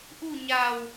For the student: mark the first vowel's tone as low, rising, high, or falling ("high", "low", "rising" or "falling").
falling